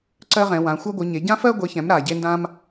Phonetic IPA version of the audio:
ǀ ɜ˥ ʁ ɛ̃˨˥ w ã˨˥ xʷ ɜ˥ ɡʷ ɨ˨˥ ɲ e˨˥ ɟ ã˥ f ɜ˥ ɡʷ e˨˥ ç ɛ̃˨˥ m ɾ a˨˥ ɟ e˥ n d ã˥ m

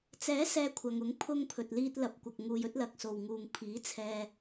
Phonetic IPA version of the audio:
t͡s ɛː˨˥ s ɛː˨˧ kʷʰ ɐ˨ ŋ ʊ˨˥ ŋ pʰ ʊ˧ ŋ pʰ ɵ˨ t̚ l iː˧ t̚ l ɐ˨ p̚ kʷ ɐ˨ k̚ ŋ uː˧ j ɵ˥ t̚ l ɐ˨ k̚ s o˨ w ŋ uː˨ ŋ pʰ iː˨˥ t͡sʰ ɛː˧

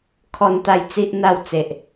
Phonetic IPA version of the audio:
kʰ ɔ˦ n t̪ a˥˧ j t͡s i˦ ʔ n̪ a˥˧ w t͡s e˨ ʔ

